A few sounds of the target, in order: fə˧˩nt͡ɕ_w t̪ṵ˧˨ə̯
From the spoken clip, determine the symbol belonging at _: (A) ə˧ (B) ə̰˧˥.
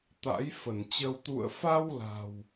A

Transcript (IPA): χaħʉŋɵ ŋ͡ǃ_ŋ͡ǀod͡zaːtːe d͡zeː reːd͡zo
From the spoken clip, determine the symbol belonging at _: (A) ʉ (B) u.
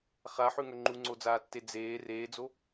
B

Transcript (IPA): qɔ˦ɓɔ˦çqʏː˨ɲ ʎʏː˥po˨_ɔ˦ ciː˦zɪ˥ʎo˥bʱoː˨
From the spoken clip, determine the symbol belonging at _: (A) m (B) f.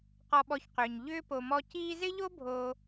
A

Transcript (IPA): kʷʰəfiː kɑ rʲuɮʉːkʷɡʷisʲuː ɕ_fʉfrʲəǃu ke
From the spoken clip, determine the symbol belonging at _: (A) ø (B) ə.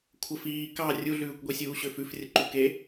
A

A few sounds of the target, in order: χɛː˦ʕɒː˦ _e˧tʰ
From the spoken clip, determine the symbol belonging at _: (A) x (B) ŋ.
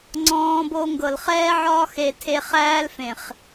A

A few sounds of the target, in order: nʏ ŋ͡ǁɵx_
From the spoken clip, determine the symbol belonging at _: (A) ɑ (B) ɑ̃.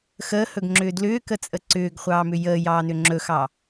A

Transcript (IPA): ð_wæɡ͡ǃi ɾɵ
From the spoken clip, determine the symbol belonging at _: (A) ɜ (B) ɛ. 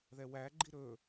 B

